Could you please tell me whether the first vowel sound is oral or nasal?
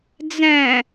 nasal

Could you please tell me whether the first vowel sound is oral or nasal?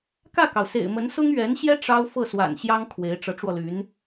oral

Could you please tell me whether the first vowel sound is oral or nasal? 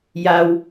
oral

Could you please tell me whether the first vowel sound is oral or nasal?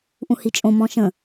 nasal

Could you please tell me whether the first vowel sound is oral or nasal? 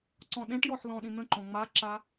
nasal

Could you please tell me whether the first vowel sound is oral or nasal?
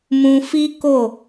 nasal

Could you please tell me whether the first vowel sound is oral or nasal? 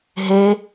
oral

